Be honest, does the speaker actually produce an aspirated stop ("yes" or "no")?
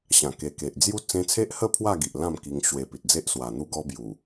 yes